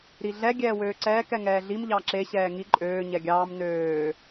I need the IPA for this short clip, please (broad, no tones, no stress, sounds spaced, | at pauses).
ɾ i ɮ ɛ ɡʲ ɛː w øː ǀ ɛː k ɛ ŋ ɛː ɮ i m ʎ ɑ ǁ e ɕ ɛː ŋ i ǃʼ øː ɲ ɛ ɡʲ ɑː m n øː